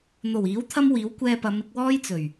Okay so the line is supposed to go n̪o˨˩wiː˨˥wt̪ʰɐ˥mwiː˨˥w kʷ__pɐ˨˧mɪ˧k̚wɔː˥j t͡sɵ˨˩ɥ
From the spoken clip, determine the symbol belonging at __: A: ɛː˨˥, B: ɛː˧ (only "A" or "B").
B